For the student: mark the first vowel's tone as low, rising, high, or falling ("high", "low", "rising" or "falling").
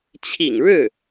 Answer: low